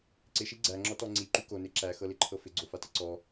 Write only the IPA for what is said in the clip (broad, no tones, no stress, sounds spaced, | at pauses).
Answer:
ǀ ɪ ʃ i ɡ͡ǀ æ ŋ͡ǁ ɔ t ɔ ŋ͡ǀ i ǃ y k o n e ǁ æ x ɤ l ɪ ǃʰ ɤ f ɪ ɡ͡ǀ o f a t ɪ ǀ ɔ